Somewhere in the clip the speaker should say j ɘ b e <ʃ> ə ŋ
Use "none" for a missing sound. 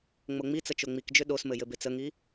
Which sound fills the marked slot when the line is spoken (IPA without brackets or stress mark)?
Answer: t͡s